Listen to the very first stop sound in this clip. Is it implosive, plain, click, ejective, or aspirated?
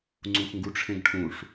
click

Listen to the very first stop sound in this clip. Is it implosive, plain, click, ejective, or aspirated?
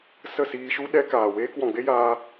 implosive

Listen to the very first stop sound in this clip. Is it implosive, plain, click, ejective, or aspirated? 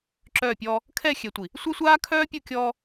click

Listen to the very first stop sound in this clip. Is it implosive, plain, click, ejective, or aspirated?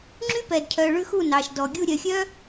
click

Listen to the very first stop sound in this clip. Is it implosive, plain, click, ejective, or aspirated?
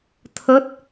aspirated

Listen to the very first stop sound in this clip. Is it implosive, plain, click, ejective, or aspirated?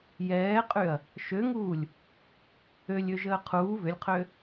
ejective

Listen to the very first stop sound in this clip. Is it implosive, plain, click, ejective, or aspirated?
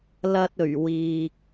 plain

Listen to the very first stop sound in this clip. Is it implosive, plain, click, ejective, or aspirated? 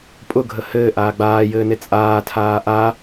ejective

